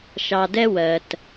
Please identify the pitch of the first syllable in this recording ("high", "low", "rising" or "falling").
low